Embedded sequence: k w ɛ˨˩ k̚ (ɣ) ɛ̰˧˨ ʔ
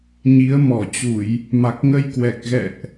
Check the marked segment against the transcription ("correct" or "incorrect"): correct